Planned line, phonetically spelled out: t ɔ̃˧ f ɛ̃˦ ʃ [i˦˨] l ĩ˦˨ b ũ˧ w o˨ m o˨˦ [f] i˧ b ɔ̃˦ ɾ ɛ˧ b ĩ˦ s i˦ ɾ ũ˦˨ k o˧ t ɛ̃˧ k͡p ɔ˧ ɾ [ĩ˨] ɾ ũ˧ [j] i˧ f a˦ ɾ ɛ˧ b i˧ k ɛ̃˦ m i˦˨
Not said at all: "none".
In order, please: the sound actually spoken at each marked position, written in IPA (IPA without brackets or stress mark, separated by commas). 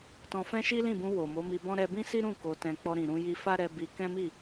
i˦, m, ĩ˨, j